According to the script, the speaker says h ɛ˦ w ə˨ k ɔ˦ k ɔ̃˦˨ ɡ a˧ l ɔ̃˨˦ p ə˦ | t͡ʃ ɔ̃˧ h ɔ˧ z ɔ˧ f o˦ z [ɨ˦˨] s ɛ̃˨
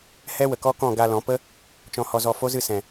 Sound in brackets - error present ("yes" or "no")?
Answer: no